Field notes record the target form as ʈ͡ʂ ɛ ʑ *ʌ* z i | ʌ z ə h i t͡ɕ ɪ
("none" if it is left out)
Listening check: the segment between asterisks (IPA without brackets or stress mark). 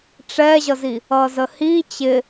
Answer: ʌ